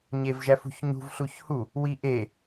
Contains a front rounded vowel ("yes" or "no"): no